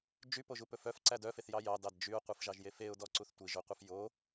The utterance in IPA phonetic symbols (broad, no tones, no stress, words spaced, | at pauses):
d͡ʒypoʒu pɵfœfǀæd œfeθjɑ jɑdɑd d͡ʒyʊ̯qʷifʒɑʒjef eʊ̯dɔ ǀuθtʷiʒoqʷɑf jo